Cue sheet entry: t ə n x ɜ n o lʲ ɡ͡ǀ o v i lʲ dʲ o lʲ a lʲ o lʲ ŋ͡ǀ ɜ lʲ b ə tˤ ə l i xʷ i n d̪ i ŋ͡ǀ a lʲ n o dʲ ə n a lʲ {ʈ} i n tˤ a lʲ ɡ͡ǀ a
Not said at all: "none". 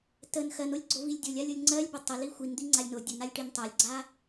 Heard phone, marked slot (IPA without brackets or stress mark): ʈ